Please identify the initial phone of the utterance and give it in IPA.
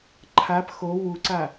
ǃʰ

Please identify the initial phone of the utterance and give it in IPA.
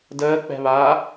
d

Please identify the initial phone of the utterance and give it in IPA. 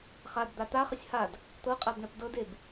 χ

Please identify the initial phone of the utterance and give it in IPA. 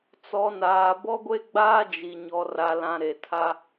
t͡s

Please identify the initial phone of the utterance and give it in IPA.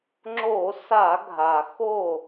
ŋ͡ǁ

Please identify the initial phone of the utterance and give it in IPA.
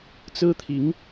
t͡s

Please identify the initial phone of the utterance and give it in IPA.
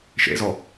ʃ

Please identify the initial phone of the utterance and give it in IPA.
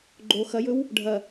ɡ͡ǃ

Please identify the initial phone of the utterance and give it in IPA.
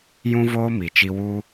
j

